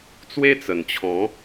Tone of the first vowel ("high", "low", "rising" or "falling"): high